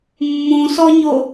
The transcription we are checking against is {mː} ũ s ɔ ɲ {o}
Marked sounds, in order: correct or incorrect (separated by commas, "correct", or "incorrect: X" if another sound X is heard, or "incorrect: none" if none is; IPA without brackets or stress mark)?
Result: correct, correct